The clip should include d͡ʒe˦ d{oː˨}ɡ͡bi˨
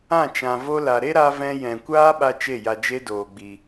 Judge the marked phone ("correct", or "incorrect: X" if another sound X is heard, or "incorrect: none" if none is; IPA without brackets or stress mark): correct